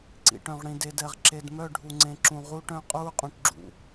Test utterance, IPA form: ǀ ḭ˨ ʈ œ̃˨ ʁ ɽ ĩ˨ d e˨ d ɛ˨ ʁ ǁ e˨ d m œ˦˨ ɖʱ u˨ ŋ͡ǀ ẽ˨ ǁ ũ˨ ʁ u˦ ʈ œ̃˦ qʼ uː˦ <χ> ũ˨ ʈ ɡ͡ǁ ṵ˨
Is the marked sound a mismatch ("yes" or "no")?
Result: yes